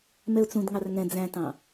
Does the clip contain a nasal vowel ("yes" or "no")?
yes